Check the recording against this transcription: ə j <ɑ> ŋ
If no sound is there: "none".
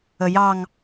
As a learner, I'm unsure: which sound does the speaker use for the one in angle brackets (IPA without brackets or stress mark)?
ɑ